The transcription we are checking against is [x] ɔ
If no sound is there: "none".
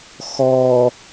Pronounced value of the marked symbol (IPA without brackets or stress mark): x